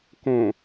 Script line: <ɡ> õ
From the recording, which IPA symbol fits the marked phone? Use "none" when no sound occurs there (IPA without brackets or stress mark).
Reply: k